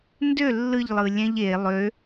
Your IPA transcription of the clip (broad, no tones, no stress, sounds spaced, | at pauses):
n d ø lː ɯ ʎ lˠ ɯ lʲ æ̃ ʎ e lˠ ø